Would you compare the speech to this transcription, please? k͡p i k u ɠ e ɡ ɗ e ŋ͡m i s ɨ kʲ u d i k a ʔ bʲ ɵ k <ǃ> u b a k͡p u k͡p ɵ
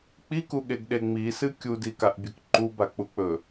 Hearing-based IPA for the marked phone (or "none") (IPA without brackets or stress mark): ǃ